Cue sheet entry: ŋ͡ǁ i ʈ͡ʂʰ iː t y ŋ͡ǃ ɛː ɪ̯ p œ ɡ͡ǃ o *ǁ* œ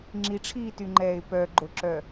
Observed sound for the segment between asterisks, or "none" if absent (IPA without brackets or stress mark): ǁ